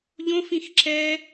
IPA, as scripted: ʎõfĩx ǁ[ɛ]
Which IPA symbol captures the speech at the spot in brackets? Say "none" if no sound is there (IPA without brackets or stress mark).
ɛ